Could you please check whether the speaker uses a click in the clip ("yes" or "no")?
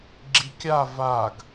yes